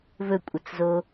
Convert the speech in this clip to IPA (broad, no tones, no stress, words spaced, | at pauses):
vɵkʷʼət͡szo